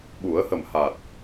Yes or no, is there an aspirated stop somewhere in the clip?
no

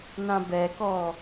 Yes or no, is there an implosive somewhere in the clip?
no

